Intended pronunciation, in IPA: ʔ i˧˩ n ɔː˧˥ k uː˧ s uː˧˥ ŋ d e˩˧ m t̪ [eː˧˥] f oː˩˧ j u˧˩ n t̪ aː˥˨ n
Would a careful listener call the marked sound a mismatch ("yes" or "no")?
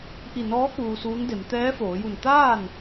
yes